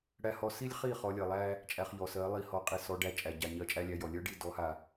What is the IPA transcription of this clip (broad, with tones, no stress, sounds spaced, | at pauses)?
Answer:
ɽ æ˦ h ɔ˦ s i˦ lʲ χ i˦˨ χ ɔ˧ lʲ ɜ˨ lˠ æ˦ | t͡ʃʼ æ˧ χ ʎ ɔ˨ s ɜ˨˦ lˠ i˧ h ɔ˨˦ qʼ i˨ s ɔ˧ ɖ æ˧ t͡ʃʼ æ˨ ɟ a˨ ɲ ɜ˧ t͡ʃʼ æ˦ lʲ æ˧ j ɔ˨ lʲ ɜ˦ ɖ i˦˨ d ɔ˨˦ h a˨